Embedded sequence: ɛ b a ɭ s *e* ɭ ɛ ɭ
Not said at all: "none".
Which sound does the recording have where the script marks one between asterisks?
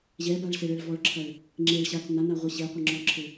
ɘ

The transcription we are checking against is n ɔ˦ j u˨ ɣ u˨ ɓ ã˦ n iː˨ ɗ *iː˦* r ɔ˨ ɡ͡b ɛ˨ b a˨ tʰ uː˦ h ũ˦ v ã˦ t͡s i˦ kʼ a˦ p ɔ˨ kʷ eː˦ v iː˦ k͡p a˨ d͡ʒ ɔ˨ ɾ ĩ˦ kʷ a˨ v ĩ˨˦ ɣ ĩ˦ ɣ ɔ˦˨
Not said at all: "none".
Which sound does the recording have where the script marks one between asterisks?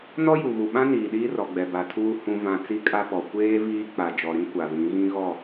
iː˦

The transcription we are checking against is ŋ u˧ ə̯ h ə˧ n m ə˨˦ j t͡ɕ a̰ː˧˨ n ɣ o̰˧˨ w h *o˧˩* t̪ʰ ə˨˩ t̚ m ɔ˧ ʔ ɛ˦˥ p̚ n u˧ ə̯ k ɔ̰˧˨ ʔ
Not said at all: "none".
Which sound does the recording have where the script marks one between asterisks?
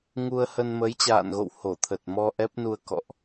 o˧˩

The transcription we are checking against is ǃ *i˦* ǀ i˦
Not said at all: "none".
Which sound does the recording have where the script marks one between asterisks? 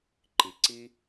i˨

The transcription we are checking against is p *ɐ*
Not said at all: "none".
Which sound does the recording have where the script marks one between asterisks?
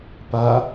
a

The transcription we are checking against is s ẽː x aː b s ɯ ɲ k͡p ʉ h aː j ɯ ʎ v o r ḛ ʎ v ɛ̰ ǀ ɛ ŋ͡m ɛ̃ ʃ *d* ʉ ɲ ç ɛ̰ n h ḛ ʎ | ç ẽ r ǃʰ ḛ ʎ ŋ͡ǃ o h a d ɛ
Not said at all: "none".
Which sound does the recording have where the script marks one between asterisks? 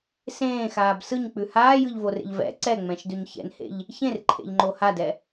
d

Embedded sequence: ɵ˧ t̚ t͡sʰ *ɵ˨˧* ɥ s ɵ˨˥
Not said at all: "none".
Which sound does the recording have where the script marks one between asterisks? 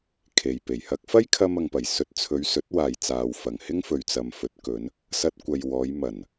ɵ˨˧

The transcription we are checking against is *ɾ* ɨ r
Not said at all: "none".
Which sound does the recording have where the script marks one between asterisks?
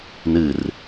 n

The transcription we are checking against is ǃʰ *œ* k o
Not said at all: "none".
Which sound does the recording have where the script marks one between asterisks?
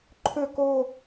ø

